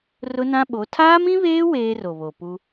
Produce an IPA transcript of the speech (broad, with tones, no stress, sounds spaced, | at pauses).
r ʊ˦ n ã˦ ɓ o˨˦ tʰ aː˦ m ĩ˦ β eː˦ w eː˦ r o˨ β o˨ p u˦